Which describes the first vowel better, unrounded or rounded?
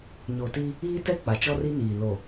rounded